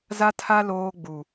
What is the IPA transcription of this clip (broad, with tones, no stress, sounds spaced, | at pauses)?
z a˦ tʰ a˦ l oː˦ ɡ͡b u˨